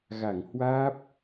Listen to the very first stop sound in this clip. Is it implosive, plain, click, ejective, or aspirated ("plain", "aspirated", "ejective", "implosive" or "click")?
plain